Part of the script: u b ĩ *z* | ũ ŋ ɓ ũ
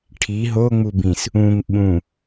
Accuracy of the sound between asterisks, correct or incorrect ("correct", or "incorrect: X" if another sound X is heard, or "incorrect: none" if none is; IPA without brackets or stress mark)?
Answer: incorrect: s